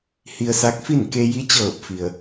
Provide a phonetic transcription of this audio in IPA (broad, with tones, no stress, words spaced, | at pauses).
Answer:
hi˧ə̯sa˧˥k̚fi˥˨n ke˧ji˧˥t͡ɕɤː˧˩p̚fi˩ə̯